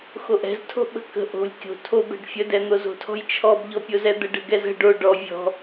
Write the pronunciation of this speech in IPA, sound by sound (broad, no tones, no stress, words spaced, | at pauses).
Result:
xoʔɛ̤ztʰo̤ ɓə̤kə̤ ʔo̤lʲ kʲo̤ tʰobɛ̤ɖ fʲədɛn̪oz o̤tʰɔ̤jt͡ʃʰɔbʎɔ pʲozɛd̪əɖ ə̤ɡɛzə̤ ɖo ɖɔ vʲɔ̤